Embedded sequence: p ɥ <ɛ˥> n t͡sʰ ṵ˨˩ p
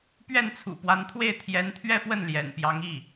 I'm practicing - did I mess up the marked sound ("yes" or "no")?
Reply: yes